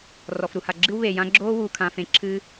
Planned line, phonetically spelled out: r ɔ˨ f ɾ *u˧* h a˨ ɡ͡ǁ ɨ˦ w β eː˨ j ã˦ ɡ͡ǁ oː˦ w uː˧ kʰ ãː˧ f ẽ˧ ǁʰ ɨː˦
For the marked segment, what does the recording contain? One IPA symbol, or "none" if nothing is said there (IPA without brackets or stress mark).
u˧